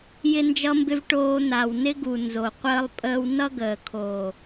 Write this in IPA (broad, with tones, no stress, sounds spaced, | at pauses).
j ɪ˦ n d͡ʒ ʌ˦ m b ɪ˦ v ʈ oː˦ n̪ a˨ w n ɪ˦ ɡ u˨ n z o˨ qʷ əː˦ lˠ pʼ əː˦ w n ʌ˦ ɡ əː˨ kʰ oː˨